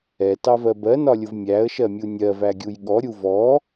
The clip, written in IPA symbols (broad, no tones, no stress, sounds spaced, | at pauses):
ɛ t ɑ v ɜ b ɜ n ɒ lʲ ʊ v mʲ æ ə̯ ʃ ɜ mʲ u nʲ ɜ v æ ɡʲ u j ɠ ɔ ɾʲ u v ɔ